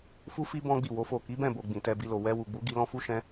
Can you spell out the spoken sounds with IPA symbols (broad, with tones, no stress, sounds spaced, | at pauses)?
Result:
f u˧ f i˧ b ɔ̃˦ ɡ͡b i˦˨ w o˨˦ f o˦˨ k i˨˦ b ɛ̃˦˨ b o˨ ɡ͡b ĩ˨ t ɛ˧ b i˧ l o˨ w ɛ˧ w u˨ ɡ͡b u˨˦ ɡ i˧ l ɔ̃˦ f u˦ ʃ ɛ̃˦